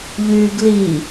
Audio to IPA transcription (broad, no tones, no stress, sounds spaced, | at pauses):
ʎ yː ɡ l i